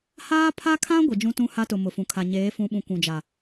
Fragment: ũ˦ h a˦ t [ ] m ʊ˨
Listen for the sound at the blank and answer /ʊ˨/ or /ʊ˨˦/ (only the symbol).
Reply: ʊ˨